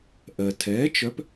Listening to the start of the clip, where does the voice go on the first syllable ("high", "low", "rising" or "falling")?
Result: low